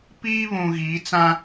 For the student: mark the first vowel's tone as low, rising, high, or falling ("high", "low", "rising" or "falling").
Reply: high